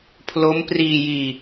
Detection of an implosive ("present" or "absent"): absent